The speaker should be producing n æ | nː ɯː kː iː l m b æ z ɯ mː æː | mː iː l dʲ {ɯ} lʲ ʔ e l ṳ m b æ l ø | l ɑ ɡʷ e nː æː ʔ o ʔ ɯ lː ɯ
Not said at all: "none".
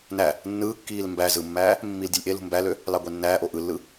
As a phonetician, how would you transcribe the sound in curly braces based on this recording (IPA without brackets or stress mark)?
ɯ